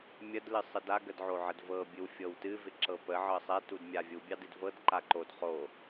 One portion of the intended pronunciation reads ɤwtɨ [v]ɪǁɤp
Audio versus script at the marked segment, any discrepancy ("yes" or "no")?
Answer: no